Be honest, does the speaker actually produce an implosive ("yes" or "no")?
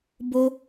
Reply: no